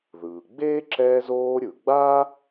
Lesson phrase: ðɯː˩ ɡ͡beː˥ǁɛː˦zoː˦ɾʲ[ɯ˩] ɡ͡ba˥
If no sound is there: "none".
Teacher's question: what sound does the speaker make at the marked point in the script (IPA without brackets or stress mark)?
ɯ˩